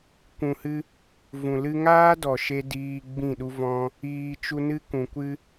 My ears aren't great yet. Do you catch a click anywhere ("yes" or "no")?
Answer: no